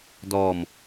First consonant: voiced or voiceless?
voiced